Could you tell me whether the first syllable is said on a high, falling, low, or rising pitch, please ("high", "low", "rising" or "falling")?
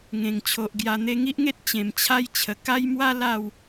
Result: low